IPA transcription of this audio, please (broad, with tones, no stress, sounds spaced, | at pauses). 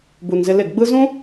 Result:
b u˨ n z ɪ˧ l ɪ˦˨ ɡ ɡ͡b ɯ˦ z ũ˦